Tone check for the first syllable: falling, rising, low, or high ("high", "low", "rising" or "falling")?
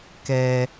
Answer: high